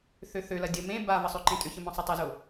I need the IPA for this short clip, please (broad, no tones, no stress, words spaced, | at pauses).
θøθølɐ dʲə mẽ bavə sˤøǃẽtʼʏçə mɔ̃sˤətˤɪzo